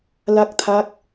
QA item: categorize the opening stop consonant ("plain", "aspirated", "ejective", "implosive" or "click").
plain